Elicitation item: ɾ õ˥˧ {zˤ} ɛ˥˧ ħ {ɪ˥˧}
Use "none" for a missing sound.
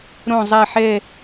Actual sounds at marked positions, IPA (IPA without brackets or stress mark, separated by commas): zˤ, ɛ˥˧